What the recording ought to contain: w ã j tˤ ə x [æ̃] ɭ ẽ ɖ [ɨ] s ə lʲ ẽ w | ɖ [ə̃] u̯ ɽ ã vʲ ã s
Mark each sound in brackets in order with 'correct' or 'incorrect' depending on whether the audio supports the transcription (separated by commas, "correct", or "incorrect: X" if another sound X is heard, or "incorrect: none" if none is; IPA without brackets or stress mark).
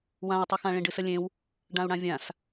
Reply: incorrect: ã, correct, incorrect: ã